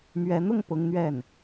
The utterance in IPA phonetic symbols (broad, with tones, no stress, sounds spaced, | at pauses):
m ɥ ɛ˧˥ n̪ ʊ˥˩ ŋ p ʊ˥ ŋ n̪ ɥ ɛ˥˩ n